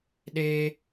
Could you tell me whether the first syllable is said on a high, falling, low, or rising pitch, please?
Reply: high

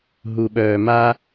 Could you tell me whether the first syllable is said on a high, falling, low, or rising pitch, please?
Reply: low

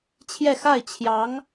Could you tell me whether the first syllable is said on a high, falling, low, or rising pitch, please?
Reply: falling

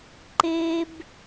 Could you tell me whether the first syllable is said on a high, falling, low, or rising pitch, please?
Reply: high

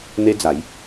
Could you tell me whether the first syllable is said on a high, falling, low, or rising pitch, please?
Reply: high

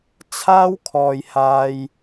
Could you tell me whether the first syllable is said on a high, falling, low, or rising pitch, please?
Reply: high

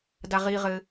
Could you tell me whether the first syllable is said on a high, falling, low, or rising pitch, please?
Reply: low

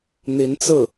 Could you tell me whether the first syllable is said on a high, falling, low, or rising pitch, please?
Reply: rising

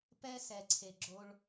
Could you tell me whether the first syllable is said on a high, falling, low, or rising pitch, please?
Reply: high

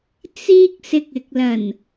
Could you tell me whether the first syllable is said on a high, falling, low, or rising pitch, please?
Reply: high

